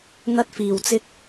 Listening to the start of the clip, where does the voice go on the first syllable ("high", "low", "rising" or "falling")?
high